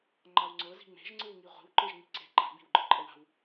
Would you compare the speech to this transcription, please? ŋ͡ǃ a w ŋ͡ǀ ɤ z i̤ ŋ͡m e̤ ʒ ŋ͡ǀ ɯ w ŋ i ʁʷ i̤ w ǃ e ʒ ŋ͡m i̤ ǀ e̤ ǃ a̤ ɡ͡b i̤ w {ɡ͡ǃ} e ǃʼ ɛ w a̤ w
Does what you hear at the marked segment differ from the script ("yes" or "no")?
no